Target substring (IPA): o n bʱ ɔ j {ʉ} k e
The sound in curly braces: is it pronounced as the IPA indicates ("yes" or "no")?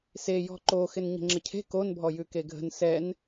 yes